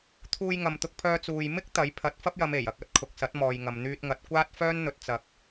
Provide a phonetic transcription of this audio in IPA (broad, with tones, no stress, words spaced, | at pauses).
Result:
t̪ʰuː˧jŋɐ˨m t̪ʊ˧k̚pʰœː˧t͡suː˨j mɪ˥k̚ t̪ɐ˨˥j pʰɐ˨˥t̚fɐ˥p̚jɐ˨˧m e˨˩j ɐ˧k̚ɐ˧t̚ kʰʊ˨k̚sɐ˨˥t̚ mɔː˨jŋɐ˨mn̪yː˧t̚ŋɐ˨˥t̚ kʷaː˥t̚ fœː˥nn̪ɵ˧t̚ t͡sɐ˧k̚